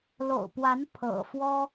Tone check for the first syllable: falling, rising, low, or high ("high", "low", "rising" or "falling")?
low